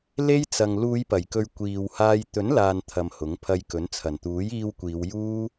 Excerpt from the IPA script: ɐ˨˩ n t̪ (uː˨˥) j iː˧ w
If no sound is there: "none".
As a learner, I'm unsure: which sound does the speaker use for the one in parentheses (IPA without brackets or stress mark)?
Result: uː˨˥